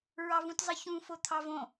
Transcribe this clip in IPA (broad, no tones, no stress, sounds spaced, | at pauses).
ɹ ɑ v ũ t zˤ ɨ ç ũ f o t̪ʰ ɑ v õ